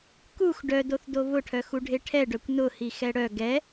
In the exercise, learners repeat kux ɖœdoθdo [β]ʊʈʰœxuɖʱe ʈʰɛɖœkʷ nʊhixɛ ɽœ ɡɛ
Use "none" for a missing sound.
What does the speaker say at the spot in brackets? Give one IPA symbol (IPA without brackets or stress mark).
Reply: β